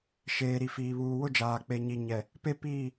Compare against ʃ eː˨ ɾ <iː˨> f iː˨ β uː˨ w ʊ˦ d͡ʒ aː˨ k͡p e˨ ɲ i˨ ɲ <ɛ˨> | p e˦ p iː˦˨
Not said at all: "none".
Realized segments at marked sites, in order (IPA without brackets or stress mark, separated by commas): i˨, ɛ˨